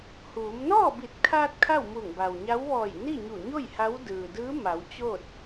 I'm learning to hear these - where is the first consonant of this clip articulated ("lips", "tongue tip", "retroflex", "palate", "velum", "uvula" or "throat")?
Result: throat